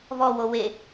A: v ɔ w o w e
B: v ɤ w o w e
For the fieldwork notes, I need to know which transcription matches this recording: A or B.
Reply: A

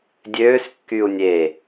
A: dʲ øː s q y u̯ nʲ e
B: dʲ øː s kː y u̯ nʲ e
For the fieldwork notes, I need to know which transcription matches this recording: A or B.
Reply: B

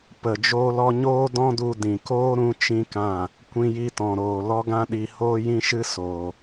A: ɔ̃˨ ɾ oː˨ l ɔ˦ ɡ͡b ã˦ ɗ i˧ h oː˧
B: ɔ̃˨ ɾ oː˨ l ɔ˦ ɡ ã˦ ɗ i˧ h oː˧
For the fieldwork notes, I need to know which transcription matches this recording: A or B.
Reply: B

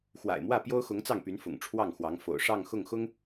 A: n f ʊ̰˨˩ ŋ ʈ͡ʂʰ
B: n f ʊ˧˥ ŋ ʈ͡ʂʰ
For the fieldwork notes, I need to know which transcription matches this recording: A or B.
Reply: A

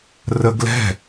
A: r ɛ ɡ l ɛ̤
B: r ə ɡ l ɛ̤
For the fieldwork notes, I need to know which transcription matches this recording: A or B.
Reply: B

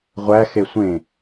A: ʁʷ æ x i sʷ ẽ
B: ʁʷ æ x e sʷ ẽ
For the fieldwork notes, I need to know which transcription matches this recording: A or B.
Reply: B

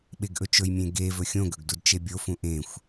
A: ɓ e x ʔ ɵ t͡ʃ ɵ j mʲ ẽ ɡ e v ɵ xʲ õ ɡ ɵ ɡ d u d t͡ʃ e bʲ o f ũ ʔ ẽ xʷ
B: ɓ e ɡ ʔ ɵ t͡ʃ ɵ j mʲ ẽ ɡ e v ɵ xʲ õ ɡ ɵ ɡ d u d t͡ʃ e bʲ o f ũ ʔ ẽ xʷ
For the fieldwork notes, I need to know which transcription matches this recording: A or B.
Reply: B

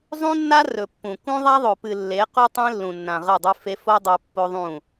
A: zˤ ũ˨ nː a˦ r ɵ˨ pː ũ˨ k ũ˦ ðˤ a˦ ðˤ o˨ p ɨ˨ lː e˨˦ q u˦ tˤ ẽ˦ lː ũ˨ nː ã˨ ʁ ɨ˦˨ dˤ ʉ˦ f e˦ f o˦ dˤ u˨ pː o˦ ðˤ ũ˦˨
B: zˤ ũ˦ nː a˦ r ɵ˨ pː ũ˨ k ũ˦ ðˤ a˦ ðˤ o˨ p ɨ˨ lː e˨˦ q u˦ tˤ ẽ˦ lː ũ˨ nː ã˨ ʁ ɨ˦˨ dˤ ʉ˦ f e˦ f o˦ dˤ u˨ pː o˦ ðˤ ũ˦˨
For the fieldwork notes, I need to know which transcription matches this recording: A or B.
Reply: B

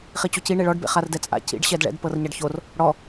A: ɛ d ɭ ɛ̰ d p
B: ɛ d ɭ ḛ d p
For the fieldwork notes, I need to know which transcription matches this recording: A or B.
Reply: A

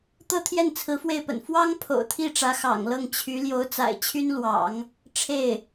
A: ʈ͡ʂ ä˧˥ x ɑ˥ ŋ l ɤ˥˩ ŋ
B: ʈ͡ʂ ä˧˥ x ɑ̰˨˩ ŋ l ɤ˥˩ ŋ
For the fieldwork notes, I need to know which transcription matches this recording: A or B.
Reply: B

